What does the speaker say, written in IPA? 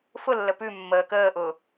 f ʊ lː ə p ʉ mː əː k əː ʔ ʊː

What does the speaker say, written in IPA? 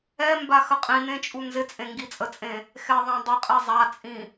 ɛ m b a x ə qʼ ĩ n ẽ t͡ʃʼ u n z ɪ t͡sʼ ẽ ŋ ɡ i t͡sʼ ə t͡sʼ ẽ | x ɛ ðˤ ã dˤ ɐ qʼ e zˤ a t͡sʼ ĩ

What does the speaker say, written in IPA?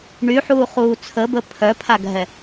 ɳ y ħ uː χ uː t͡sʰ ə b ə pʰ œ pʰ a ɡʱ ɛ

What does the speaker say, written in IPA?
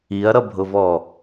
i ɐ̯ ɾ ʌ bʱ ʊ v ɔ

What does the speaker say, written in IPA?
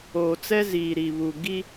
oː˨ t͡s ɛ˦ z iː˨ ɾ i˨ β u˨ ɡ i˦

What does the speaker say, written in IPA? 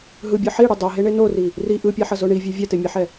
ɦ ɯ bʲ ʌ ħ i ɽ u dˤ o ɦ e ɳ e n o r i | r i ʔ ɯ pʲ a ħ ʌ z o ɳ i vʲ e vʲ ɛ t e mʲ ɛ ħ ɛ

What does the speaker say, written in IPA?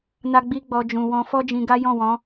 n a˦ ɡ͡b i˦ ɡ͡b ɔ˧ d͡ʒ ũ˨ w ɔ̃˧ f ɔ˦ d͡ʒ ĩ˧ ɡ a˦ j ɔ̃˦˨ w ɔ̃˨˦

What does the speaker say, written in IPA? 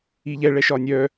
i ʎ ɛ ɭ ɛ ʃ ɒ nʲ œ

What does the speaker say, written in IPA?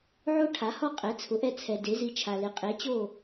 ʕ o˥ ʈʰ a˩˥ h ɔ˥˩ qʼ ɛ˩˥ t͡sʰ ʊ˩˥ ʔ ɛ˥˩ t͡sʰ ɛ˩ d e˩˥ z i˧ t͡ʃʰ a˩ l ɪ˩ qʼ e˩˥ t͡ɕ o˥˩

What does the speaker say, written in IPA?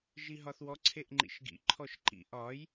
ʒ i ɦ ɒ θ w ɔ ǀʰ e ʔ ŋ͡ǃ ḭ ʃ ɡ ḭ ǃʰ ɔ ʃ ǃ ḭ ʔ ɒ j

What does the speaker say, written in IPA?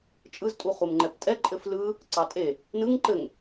t͡ʃʼ ɯ z tʼ u χ u m ŋ͡ǃ ɛ p tʼ ɛ ǃʼ ɘ f l ɯ | ǀ ɑ tʼ e | n ɯ ŋ ǃ ɘ ŋ

